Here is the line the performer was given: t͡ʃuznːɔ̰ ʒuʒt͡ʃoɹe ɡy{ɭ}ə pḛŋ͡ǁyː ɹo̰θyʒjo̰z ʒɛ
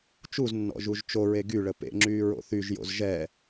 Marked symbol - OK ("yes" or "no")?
yes